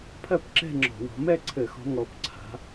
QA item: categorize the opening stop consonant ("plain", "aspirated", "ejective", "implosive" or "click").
aspirated